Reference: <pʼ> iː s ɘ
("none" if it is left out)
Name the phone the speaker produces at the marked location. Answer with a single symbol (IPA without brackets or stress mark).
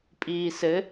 pʼ